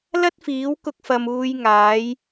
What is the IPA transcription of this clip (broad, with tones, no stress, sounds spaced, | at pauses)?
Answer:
l ɐ˥ t̚ f iː˨˥ w k ʊ˧ k̚ f ɐ˨ m uː˨˧ j ŋ aː˨˥ j